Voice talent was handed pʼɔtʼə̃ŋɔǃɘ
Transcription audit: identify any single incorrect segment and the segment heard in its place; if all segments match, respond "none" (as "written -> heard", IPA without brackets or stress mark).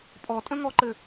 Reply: none